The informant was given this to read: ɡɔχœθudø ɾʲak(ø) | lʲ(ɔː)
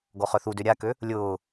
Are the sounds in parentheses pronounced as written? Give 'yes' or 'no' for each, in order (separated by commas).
yes, no